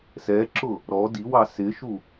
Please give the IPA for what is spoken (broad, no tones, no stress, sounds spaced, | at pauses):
s ɛ ǁ ʊ | ɾ ɔ d i w ɑ s ɪ ʃ u